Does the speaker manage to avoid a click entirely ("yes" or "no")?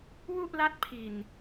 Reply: yes